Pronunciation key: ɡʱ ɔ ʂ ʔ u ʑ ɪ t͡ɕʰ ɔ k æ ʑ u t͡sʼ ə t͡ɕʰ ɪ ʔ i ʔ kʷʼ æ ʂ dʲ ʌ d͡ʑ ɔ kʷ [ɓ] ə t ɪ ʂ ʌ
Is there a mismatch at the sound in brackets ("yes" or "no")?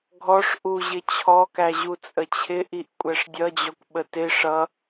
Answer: no